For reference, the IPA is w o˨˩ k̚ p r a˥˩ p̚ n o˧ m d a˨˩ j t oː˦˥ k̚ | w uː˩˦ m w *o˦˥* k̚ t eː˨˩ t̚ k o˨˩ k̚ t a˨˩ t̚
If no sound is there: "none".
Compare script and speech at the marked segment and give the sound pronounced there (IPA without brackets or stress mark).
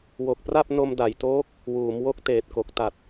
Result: o˦˥